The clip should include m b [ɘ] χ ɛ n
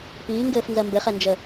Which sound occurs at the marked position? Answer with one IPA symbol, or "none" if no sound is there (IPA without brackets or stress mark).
ɘ